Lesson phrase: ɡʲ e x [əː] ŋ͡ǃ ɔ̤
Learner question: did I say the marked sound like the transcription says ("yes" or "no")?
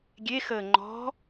yes